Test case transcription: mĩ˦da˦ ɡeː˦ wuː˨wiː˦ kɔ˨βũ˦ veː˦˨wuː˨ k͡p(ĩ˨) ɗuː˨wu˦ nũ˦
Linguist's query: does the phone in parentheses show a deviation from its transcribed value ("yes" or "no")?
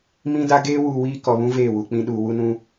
no